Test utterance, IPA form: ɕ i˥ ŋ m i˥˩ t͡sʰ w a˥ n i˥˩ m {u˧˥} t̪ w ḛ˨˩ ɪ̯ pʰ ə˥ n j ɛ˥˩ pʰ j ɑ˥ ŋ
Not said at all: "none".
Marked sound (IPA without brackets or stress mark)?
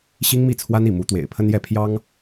u˧˥